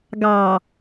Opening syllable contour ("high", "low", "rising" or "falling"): low